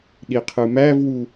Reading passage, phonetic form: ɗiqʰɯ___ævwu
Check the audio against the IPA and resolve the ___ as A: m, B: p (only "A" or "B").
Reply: A